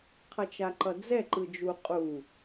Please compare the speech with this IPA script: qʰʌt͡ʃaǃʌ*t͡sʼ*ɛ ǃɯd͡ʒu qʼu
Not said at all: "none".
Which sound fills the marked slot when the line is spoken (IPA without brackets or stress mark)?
d͡z